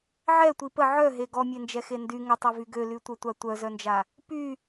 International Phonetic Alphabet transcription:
ʕ ɛ tʷ i p ə ʕ œ ɦ e ɡ ɔ mʲ e n d͡ʒ ɛ x e n d y ŋ ə tˤ e v y ɡ ø l y tʷ œ tʷ a tʷ œ z œ n d͡ʒ a | p y

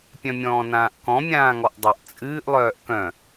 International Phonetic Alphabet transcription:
pʲ œ̃ mʲ ɔ̃ː n ãː ʔ k ɔ̃ mʲ ãː ŋ ɔ ʔ dˤ ʊ ʔ t͡sʼ ɨː ʔ lˠ œː ʔ k œ̃

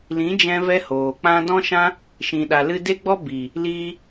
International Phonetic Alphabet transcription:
l ĩ˨˦ d͡ʒ ɛ̃˧ v ɛ˧ h oː˨ k͡p ã˦ d ɔ̃˦ ʃ ã˦ | ʃ ĩ˨ ɗ a˨ l ɨ˧ d e˦ ɡ͡b ɔ˦ b i˨ | l iː˧

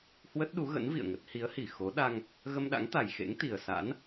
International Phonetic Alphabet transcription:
h w ə˦˥ t̚ ɗ u˨˦ ɣ ə̰˧˥ n v ḭ˧˨ ə̯ ŋ ə˦˥ t̚ h i˨˦ ə̯ h i˧˩ x o˨˦ ɗ a˧ ŋ | ɣ ə˧ m ɗ a̰˧˥ ŋ t̪ a˨˩ j x ḛ˧˥ ŋ t̪ i˨˩ ə̯ s a̰˧˥ n

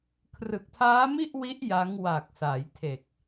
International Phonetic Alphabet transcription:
kʰ r ɯ˨˩ k̚ tʰ aː˦˥ m i˥˩ ʔ w i˦˥ ʔ j a˦˥ ŋ w a˨˩ k̚ s a˩˦ j tʰ e˨˩ k̚

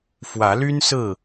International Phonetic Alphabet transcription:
f w ä˨˦ l y˦ n s ɹ̩˥˨

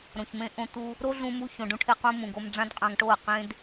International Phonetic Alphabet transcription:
ɾ õ˨ ç m ẽ˧ ʔ õ˧ t̪ u˧ | ɾ o˦ ɮ ũ˧ m u˧ ç õ˨ ɖ ũ˧ ʈʰ e˧ q ũ˧ m ũ˨ ɡ o˧ m ɖ͡ʐ ã˦ d qʼ ã˧ ŋ ʈ o˦˨ ə̯ q ẽ˦ d

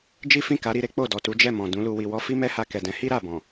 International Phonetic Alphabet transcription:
d͡ʒ i˦ f ĩ˦˨ k a˨˦ ɾ i˧ ɾ e˦ k͡p o˦˨ d ɔ˨ t u˨˦ d͡ʒ ɛ˦˨ m ɔ̃˨ d ũ˨˦ l u˧ w i˨ w ɔ˧ f i˦ m ɛ˦ h a˧ k ɛ˨ d ɛ̃˨˦ h i˦ ɾ a˦˨ b ɔ̃˨

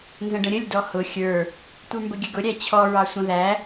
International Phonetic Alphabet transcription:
n z ə̃ ɖ ə̃ ɾʲ ə lʲ d ɔ h ʊ xʲ ə˞ | tʷ ə˞ m b ə ɡʲ ə ɡ ʊ ɾʲ æ t͡ɕʰ ɔ ɹ ɑ sʷ ə̃ ð æ

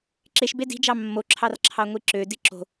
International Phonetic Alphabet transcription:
ǁ e ʃ b e d i̤ d͡ʒ ɑ mː o ǁʰ ɑ r ǁʰ ɑ ŋʷ i ǁ ø d i ǁ o̤

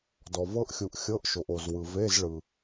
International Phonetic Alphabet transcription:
d ɔ˨ v ɤ˦˥ ʔ xʲ u˨ ʔ xʲ ɤ˧˥˧ ʔ ʃ o˨ ʔ o˨ z w ɯ˨ v e˧˥˧ z ɭ ɯ˨

